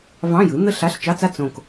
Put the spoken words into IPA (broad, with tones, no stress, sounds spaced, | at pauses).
v ɑ̃˧˥˧ j ɯ˩˥ n̪ ə˥˨ ɬ a˧˥˧ ɬ t͡ʃ ɑ˧˥˧ t͡s a˥˨ t͡s õ˥˨ k